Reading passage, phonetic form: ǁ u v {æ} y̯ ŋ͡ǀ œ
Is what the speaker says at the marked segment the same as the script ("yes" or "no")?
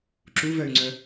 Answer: no